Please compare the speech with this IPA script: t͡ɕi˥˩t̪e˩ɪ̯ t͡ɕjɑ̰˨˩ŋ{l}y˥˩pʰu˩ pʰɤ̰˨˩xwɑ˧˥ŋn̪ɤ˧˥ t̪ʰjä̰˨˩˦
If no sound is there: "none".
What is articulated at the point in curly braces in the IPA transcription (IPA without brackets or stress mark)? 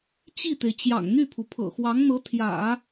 n̪